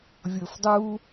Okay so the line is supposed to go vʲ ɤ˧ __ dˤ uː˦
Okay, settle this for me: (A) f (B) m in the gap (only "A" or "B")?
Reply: A